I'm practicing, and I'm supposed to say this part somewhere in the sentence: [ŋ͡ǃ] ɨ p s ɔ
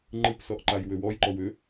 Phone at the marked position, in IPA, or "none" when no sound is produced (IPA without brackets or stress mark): ŋ͡ǃ